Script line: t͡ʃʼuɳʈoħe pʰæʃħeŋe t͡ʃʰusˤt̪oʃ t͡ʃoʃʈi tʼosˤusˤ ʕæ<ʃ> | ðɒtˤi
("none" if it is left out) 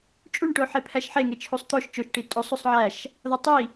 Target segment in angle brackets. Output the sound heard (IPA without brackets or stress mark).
ʃ